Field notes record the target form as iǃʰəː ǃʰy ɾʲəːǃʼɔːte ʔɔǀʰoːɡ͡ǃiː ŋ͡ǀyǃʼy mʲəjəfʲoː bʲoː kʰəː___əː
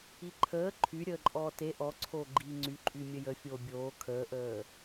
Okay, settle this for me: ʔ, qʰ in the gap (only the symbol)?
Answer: ʔ